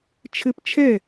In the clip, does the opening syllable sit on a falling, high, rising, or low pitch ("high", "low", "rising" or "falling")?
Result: high